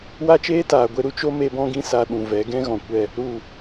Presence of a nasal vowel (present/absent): present